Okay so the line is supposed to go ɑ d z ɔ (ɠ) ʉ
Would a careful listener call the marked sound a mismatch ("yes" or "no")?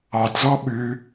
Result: yes